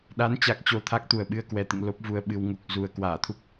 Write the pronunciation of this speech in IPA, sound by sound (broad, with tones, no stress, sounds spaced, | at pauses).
ɗ a˨˦ n t͡ɕ a˨˩ k̚ t͡ɕ o˧ t̪ʰ a˦˥ k̚ t̪ u˨˩ ə̯ ɓ ɨ˧ ə̯ k w ɛ˨˩ t̪ ɨ̰˧˨ ŋ l o˦˥ p̚ v u˧ ə̯ ɓ ɨ˧ w ŋ u˨˩ k̚ z u˨˩ ə̯ k w aː˧˩ t̪ʰ u˦˥ k̚